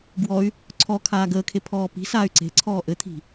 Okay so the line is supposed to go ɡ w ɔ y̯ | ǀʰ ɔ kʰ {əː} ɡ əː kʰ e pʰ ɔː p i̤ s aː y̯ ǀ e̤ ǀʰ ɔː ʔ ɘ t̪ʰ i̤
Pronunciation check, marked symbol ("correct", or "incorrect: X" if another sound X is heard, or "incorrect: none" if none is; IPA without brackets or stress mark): incorrect: aː